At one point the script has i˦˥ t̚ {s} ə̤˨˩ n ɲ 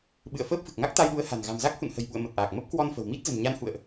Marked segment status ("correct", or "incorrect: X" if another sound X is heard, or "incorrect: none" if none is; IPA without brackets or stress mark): incorrect: z